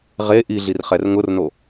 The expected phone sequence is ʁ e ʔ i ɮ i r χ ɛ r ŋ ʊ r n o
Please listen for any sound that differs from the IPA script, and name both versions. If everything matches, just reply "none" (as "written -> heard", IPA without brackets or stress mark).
none